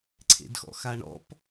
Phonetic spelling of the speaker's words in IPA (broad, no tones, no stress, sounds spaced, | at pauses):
ǀʰ ḛ d x ɔ̰ x a ɳ ɔ̰ p